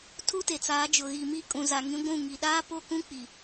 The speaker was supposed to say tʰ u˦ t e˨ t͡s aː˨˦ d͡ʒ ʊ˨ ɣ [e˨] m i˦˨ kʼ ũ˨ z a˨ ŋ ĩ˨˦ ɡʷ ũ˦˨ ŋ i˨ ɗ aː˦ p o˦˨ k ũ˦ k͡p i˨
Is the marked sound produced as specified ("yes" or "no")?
no